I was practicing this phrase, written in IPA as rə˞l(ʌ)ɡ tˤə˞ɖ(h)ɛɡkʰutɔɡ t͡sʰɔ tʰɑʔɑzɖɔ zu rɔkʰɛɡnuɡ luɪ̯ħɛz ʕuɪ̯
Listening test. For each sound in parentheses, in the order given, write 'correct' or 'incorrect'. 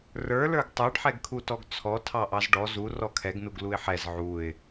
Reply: incorrect, incorrect

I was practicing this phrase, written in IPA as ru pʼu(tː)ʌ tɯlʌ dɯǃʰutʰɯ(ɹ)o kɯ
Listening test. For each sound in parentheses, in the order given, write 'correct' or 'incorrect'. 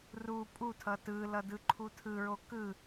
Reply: incorrect, correct

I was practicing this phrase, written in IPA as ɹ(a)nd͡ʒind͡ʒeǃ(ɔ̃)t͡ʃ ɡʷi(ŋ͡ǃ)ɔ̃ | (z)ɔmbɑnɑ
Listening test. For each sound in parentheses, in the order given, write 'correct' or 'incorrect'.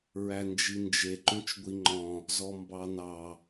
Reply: incorrect, incorrect, correct, correct

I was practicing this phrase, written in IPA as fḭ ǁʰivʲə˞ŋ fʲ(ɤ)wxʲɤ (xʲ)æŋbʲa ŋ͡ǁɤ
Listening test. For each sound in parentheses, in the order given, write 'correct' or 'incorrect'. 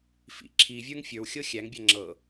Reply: incorrect, correct

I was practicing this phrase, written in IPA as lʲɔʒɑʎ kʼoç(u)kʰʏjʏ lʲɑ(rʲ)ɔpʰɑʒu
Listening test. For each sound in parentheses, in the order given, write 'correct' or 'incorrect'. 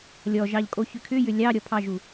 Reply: incorrect, incorrect

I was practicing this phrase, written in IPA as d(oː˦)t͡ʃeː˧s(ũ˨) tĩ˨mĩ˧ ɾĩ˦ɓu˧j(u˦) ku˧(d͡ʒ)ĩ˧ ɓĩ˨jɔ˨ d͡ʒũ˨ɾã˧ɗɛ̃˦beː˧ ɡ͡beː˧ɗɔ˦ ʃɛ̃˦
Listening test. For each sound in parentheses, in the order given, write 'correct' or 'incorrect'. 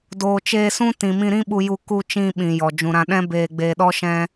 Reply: incorrect, incorrect, incorrect, incorrect

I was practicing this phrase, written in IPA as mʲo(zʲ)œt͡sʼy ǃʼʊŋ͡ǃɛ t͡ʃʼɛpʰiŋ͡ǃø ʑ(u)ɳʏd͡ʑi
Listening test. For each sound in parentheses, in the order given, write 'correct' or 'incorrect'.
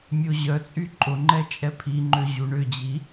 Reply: incorrect, correct

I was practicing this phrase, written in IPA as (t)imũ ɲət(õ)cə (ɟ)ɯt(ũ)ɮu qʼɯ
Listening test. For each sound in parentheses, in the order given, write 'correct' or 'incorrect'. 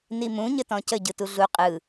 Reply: incorrect, incorrect, correct, incorrect

